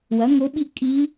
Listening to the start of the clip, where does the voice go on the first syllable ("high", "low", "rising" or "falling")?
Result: rising